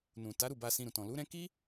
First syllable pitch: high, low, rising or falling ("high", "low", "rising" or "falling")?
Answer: low